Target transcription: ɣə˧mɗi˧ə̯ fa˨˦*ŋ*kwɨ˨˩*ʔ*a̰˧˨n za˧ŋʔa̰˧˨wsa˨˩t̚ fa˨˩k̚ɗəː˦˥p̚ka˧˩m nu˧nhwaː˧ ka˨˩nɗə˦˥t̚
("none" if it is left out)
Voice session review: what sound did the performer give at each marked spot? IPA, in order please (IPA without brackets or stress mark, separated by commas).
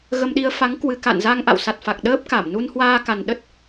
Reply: ŋ, k